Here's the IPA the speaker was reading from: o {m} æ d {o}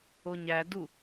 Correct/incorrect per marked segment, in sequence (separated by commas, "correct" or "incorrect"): incorrect, incorrect